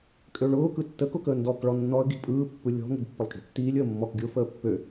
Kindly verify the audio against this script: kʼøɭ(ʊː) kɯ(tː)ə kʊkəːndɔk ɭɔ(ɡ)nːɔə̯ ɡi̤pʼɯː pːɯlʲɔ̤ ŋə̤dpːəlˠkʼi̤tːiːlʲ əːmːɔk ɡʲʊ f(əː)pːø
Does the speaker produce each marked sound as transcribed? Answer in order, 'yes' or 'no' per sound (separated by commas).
yes, yes, no, yes